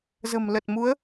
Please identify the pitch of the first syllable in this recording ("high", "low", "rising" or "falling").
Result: low